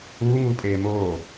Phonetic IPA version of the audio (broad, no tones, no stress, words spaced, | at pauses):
uːŋuːpʼeː moː